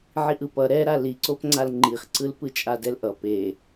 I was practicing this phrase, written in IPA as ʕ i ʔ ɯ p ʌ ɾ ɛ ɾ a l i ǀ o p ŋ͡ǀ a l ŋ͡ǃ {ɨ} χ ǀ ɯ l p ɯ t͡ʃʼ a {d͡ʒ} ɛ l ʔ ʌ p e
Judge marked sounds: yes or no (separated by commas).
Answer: no, no